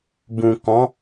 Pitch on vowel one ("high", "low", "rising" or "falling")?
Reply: low